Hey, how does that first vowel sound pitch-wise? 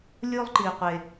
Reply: high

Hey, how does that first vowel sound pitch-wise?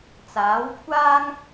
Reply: rising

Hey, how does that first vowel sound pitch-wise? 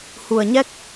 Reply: low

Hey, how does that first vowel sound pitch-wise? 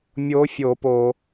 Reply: rising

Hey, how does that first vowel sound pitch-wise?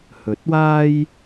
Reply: rising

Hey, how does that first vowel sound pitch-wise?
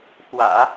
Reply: low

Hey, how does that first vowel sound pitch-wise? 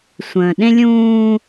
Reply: low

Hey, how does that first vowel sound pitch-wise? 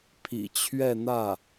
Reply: low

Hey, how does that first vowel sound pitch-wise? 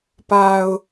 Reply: low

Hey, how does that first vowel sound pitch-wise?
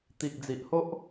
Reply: low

